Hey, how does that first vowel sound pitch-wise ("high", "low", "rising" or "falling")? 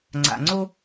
low